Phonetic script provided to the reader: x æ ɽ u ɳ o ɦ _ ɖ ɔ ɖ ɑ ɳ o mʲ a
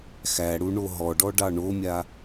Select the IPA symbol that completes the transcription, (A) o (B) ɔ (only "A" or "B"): B